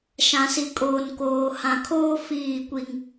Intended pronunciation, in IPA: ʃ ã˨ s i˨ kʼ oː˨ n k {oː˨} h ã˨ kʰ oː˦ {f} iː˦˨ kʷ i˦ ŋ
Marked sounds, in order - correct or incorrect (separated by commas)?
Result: correct, correct